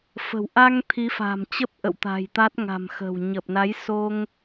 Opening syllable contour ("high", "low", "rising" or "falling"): low